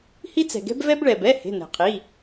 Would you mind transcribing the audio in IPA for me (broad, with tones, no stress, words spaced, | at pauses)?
hi˦t͡sɛ̤˩ɡɛ̤˦b vɛ˦b ɭɛ˩bɛ˩˧˩ he̤˩˧˩nɛ̤˩qʰi˩˧˩